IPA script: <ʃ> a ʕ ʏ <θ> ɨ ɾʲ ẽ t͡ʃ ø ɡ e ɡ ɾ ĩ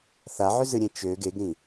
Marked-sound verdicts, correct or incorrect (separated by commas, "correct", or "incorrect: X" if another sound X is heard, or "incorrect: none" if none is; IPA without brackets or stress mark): incorrect: θ, incorrect: z